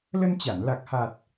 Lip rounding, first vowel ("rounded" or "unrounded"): unrounded